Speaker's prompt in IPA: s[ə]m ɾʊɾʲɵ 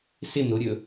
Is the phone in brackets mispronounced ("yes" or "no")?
yes